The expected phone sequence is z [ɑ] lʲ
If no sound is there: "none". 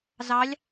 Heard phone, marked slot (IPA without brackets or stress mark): ɑ